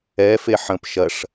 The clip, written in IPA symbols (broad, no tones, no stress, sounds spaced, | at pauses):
ɛ f e ħ ə̃ p ʃ ɐ ʂ